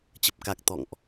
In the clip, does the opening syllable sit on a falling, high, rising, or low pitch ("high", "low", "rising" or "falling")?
low